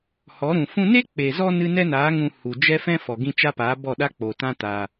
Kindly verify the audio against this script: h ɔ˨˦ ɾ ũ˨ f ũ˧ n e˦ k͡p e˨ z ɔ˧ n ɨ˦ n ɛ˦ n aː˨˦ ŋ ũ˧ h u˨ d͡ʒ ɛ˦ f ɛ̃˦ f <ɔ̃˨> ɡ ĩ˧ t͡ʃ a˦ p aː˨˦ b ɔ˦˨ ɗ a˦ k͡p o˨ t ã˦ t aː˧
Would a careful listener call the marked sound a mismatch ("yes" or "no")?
yes